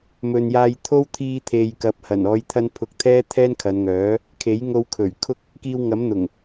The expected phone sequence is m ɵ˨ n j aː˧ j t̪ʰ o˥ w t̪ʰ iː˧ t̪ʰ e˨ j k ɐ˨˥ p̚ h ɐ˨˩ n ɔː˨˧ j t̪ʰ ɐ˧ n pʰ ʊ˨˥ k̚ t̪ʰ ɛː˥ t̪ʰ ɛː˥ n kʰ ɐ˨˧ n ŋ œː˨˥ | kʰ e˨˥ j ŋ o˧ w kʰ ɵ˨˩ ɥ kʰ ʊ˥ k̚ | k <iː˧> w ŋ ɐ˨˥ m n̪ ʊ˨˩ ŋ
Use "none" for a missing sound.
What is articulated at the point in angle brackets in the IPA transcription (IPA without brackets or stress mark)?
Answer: iː˧